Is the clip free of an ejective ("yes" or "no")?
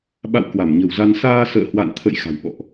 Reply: yes